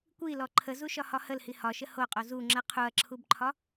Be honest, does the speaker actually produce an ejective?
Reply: yes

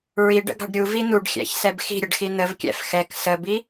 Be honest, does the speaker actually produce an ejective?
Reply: no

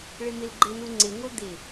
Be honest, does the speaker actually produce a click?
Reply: yes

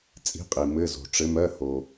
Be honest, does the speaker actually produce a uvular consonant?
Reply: yes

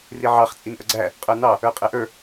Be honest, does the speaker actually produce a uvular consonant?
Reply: yes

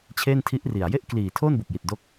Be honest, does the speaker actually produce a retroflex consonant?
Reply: no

